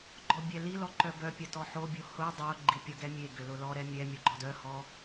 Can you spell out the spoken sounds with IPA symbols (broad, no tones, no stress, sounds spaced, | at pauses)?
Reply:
ɡ͡ǃ ɔ bʲ ɛ l i l ɔ ǃ œ b œ pʲ ɐ t ɔ ħ o bʲ o h ʊ dˤ o ɡ͡ǃ i pʲ ʊ ɡ ɛ mʲ e ɡ ʏ l ʊ l ɔ ɾ ɛ mʲ ɛ mʲ ɔ ɡ͡ǃ ɔ d œ h ɔ